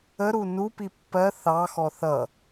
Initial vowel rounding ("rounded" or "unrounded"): unrounded